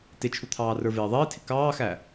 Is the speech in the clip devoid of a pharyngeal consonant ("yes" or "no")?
yes